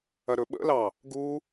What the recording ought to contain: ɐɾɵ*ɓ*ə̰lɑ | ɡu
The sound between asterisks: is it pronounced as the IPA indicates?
yes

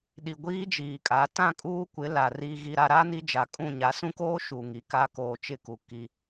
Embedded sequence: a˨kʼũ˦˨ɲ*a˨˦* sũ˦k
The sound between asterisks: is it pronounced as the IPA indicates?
yes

